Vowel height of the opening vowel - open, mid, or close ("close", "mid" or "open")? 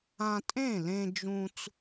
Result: open